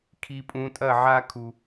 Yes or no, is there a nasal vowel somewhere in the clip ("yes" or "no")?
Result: yes